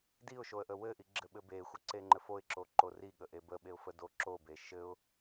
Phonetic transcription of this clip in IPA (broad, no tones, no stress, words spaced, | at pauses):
diʊ̯ʃoə̯ʔə wɘʔiɡ͡ǁɘɓɘ bexʷəǀeŋ͡ǃɘf oɪ̯ǁoǃo riɠəʔe bəɓeʊ̯fədo ǁobe ʃɘʊ̯